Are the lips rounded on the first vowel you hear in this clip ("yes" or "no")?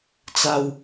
no